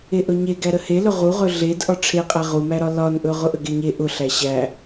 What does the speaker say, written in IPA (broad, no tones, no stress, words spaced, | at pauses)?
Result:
eʔɵɲe ɡæɾəhelɵ ʁuʁɵ ɮed ʔɒʈ͡ʂʰeqʼæ ʁumæɾɒ lɒnʔɵ ʁʊʔəɡeɲe ʔʊɬæ ɕæ